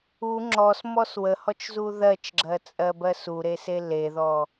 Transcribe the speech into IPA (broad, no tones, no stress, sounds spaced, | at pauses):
u ŋ͡ǁ ɔ s m ɔ s w ə h ɔ t͡ʃ z u ð ɜ t͡ʃ ɡ͡ǁ ɜ t͡sʼ ɜ b ɜ s u ɾ e s e l e ð ɔ